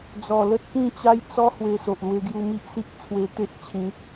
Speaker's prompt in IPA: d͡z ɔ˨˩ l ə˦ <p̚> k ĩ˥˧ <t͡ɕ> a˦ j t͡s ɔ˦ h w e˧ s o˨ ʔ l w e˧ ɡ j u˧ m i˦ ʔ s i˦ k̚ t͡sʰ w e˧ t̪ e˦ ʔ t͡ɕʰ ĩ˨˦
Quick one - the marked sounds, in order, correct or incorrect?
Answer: incorrect, correct

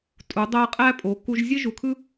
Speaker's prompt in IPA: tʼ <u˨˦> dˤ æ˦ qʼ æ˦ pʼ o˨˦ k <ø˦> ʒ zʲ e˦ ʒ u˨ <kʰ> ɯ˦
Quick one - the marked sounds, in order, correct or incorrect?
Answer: correct, incorrect, correct

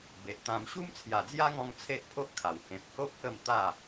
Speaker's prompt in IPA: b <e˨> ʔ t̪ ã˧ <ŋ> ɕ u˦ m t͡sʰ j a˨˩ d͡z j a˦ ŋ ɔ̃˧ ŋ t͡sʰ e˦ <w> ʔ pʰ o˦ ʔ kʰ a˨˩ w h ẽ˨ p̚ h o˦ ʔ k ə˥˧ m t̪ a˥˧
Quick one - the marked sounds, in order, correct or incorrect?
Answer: correct, incorrect, incorrect

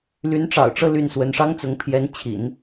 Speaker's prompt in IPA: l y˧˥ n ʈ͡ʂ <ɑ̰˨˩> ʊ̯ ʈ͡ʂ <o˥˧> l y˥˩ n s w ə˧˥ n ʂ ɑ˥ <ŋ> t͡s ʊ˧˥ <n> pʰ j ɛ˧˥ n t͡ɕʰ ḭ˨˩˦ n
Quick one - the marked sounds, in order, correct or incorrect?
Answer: correct, incorrect, correct, incorrect

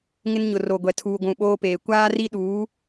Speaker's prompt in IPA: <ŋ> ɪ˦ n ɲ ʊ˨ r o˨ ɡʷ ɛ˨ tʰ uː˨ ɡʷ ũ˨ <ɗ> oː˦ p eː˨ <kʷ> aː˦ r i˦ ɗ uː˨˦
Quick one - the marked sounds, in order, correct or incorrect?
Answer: correct, incorrect, correct

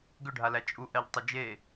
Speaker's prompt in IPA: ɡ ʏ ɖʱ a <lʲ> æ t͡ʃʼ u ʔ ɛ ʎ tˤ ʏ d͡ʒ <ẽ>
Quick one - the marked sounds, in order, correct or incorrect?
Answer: incorrect, incorrect

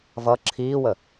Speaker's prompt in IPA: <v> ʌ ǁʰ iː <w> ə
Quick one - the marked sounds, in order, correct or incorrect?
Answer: correct, correct

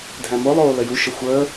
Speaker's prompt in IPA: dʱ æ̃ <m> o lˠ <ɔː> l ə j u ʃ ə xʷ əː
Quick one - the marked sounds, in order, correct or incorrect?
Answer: correct, incorrect

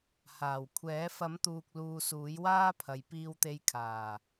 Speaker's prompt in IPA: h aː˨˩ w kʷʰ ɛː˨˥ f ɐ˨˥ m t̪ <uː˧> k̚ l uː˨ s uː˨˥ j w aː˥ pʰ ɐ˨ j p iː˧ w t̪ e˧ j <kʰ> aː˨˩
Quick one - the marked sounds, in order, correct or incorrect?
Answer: incorrect, correct

